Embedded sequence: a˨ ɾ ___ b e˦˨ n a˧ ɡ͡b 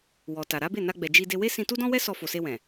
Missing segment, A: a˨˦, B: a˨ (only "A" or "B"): A